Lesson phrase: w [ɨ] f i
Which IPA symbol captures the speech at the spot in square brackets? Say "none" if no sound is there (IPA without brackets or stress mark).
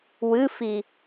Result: ɨ